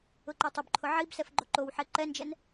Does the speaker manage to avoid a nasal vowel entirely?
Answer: yes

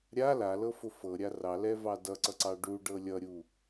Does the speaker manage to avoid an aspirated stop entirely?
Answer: yes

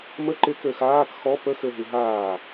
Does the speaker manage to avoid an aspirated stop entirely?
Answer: yes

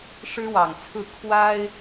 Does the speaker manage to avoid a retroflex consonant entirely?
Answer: no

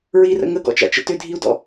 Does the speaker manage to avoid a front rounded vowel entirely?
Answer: no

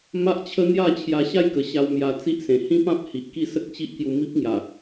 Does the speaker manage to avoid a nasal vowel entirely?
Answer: no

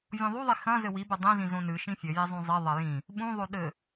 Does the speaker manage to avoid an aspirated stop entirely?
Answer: yes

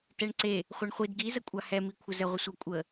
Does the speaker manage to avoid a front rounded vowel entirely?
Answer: yes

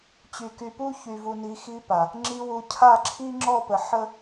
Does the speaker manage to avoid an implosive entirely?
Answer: yes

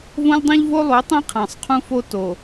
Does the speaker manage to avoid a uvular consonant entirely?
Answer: no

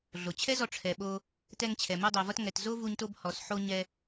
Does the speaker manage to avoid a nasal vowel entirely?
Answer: yes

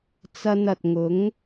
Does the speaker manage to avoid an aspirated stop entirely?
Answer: yes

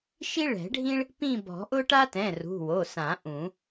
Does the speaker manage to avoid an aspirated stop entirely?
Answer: yes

